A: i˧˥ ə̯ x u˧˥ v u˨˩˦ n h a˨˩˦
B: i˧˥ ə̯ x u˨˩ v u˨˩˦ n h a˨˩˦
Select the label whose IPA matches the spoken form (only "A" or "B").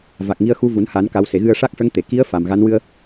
A